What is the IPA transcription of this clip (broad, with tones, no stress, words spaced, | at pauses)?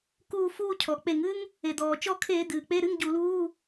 kuː˦˨ fuː˦˨cʰɔ˩ k͡pe˧˩˧ŋɨ˥ŋ | e˩d̪ɔː˩ t͡ʃɔ˦˨kʰeː˧˩˧ d̪ɨː˩k͡pe˧˥˧ɾɨ˧˥˧ŋ ɟu˧˩˧luː˧˥˧